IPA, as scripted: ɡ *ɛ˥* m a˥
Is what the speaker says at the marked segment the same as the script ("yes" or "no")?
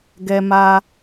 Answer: yes